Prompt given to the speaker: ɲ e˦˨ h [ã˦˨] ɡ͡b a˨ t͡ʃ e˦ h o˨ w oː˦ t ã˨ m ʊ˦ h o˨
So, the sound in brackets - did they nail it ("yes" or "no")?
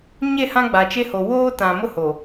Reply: no